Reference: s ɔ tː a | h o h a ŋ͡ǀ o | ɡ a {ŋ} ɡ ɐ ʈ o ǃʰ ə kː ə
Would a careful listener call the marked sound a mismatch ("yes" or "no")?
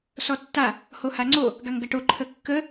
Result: no